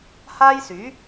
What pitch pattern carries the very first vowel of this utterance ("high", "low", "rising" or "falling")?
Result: high